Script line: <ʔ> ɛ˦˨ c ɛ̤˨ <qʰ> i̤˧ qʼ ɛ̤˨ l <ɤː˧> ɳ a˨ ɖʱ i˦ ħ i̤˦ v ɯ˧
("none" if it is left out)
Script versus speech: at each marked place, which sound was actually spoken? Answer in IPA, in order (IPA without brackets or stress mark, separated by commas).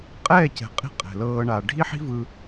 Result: qʼ, qʼ, ɤː˧